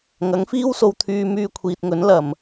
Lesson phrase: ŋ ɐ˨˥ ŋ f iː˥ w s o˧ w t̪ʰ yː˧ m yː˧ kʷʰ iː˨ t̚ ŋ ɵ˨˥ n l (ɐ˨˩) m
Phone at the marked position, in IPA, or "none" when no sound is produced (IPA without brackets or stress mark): ɐ˨˩